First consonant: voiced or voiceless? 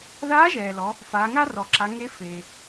voiced